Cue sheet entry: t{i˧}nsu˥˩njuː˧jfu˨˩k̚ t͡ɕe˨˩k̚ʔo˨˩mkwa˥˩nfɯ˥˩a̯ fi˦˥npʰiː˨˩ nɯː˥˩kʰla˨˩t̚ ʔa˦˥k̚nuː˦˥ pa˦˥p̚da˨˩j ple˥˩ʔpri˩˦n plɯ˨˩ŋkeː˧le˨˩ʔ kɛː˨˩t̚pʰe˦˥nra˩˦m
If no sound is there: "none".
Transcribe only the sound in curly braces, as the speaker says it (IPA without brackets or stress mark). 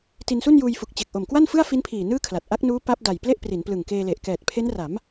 i˧